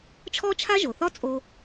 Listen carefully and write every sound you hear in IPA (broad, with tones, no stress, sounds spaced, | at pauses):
t͡ʃʰ ɔ˥ t͡ʃʰ a˥ ʒ o˩ θ ɒ˦ t͡sʼ o˨